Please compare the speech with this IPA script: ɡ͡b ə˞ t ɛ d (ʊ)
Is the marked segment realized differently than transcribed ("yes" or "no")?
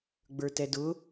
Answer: no